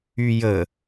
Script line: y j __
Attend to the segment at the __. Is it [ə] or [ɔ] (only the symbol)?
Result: ə